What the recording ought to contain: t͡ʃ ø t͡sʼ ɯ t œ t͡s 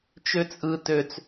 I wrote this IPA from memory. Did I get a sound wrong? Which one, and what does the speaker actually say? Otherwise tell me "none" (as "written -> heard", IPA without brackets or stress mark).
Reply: œ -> ø